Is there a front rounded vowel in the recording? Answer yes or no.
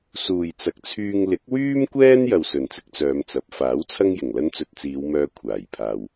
yes